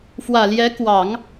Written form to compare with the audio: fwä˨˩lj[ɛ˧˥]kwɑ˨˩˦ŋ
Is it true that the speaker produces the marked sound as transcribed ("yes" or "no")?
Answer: yes